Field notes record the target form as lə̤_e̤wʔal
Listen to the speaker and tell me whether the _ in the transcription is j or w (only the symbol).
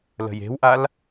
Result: j